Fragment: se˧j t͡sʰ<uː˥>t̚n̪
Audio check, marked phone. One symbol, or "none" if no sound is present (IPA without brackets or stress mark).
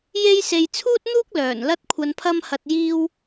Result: uː˥